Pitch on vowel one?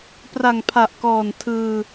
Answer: low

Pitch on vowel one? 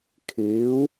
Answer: rising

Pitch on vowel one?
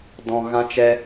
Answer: high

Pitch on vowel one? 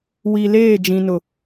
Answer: low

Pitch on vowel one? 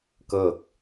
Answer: falling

